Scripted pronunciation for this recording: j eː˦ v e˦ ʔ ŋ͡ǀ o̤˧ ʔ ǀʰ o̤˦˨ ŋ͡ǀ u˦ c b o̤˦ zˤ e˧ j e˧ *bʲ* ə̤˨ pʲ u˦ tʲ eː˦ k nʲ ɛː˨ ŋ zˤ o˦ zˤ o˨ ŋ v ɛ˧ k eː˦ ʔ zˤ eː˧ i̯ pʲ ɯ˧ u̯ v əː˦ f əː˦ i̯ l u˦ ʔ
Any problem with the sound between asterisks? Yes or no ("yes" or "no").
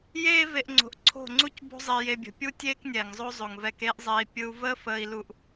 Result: no